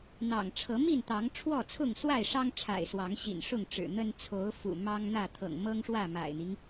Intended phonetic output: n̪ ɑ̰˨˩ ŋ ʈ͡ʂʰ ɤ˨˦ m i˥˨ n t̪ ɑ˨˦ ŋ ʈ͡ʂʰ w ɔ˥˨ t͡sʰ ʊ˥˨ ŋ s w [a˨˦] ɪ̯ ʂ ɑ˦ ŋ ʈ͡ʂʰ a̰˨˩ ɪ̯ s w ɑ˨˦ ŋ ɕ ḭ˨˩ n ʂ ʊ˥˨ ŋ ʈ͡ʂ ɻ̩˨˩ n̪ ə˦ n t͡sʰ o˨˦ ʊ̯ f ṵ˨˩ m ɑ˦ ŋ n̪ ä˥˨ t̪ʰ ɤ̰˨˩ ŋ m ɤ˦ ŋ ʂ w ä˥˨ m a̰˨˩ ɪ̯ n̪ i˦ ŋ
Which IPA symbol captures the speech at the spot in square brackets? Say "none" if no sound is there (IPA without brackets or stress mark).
a˥˨